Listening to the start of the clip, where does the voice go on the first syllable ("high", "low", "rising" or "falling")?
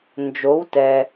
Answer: rising